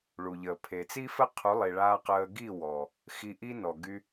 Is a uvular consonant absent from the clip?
no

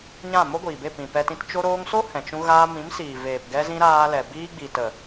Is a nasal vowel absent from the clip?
no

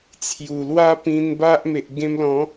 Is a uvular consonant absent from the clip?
yes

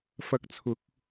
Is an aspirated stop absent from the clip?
no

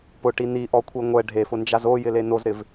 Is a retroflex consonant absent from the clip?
no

